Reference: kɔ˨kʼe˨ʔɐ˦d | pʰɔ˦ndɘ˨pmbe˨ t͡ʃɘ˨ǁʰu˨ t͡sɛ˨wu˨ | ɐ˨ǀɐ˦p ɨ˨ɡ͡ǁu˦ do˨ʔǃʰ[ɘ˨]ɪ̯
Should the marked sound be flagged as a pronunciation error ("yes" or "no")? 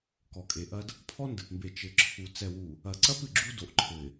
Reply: no